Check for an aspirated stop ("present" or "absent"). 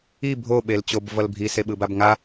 absent